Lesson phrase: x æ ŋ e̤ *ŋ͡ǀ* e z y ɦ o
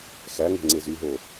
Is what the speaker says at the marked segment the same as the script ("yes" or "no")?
yes